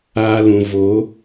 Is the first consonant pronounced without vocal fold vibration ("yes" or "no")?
no